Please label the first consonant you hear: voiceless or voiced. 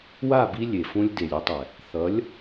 voiced